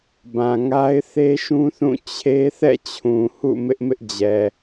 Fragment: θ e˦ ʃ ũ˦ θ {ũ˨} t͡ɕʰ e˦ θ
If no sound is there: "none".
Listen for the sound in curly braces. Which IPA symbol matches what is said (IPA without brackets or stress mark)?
ũ˦˨